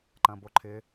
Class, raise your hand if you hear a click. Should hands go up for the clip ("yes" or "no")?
yes